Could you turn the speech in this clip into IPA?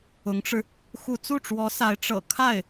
ʊ˧˥ ŋ ʈ͡ʂ ɻ̩˧ | x u˥˧ t͡s u˥˩ ʈ͡ʂ w ɔ˧˥ s a˧˥ ɪ̯ ʈ͡ʂ ɤ̰˨˩ kʰ a˥˩ ɪ̯

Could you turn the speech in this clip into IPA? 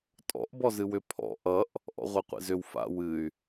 tʼ ɔ̰ ʔ b ɔ z ɨ w ʏ pʰ ɔ̰ ʔ ʌ ʔ | ʔ ɔ̰ ʁʷ e qʷ ḛ z ʏ w f a̰ w ɨ y̯

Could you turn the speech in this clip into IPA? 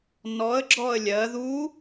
n ɔ ə̯ ɡ͡ǁ ɔ ə̯ lʲ ɜ ð u

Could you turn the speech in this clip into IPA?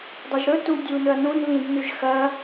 dˤ ɵ ʒ ɾ ɵ t u dʲ u n ɵ ɐ̯ n ũ n β ĩ d n ʉ ʒ x ɐ

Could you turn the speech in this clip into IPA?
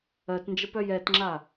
ɜ t n d͡ʒ ə p œ j ɛ t ŋ͡ǁ a

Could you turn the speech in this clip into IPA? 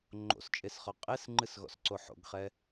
ŋ͡ǃ o̰ s t͡ʃʼ e s χ ɔ qʼ e s ŋ͡ǃ ɨ s ɣ ɔ̰ s ǀ o ħ o̰ ɡ χ ɛ

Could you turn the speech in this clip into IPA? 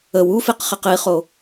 ə w u f i q χ i q i χ o

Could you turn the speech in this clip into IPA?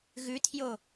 ɣ ʉ tʰ j o

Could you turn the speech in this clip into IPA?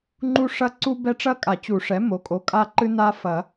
ŋ͡ǃ u˦ ʂ ɐ˦ ǀ u˦ b ɛ˦ ʈ͡ʂ ɐ˦ kʼ a˨˩˦ t͡ɕ u˨˩˦ ʂ ɛ˩˥ m o˩˥ kʼ o˩˥ kʼ a˦ ǃ ɨ˦ n a˦ f ɐ˨˩˦

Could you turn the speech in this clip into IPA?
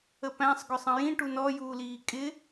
ə p æ̃ sˤ ɡ ʊ sˤ ə̃ j ĩ ʈ u n ɔ j uː l iː kʼ ɪ

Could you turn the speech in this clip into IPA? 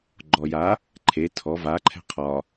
ɡ͡ǃ ɔ j a | ǃʰ e tʰ ɔ v a ǃʰ ɛ̤ qʰ ɒ

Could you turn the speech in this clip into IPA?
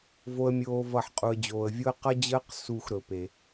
v o˦ ə̯ mʲ oː˦ v ʌ˦˨ ħ qʼ u˨ ə̯ d͡ʑ oː˨ ə̯ vʲ o˦ ə̯ q ʌ˦ d͡ʑ əː˦ q s u˦˨ x ɾ ɵ˨ p e˨

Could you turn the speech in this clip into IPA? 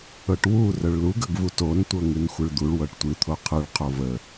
ɤ ʈ w u r ə ɭ l u ɡ ə ɡ v u t o n tʷ ɤ ŋ ɨ n xʷ ɨ ɭ d̪ u ɭ w ɤ ʈ tʷ ɨ t̪ʰ o qʰ ɨ ɭ qʰ o v ə

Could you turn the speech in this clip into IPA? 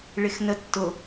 ɭ ɪ x n ə tː ʊ

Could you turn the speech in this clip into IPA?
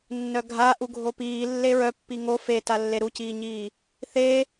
nː œ ɡʱ a ʔ u ɡʱ o p iː lː e ɹ œ pː i ŋ o f e t a lː e ɾ u c iː ɲ iː | θ e

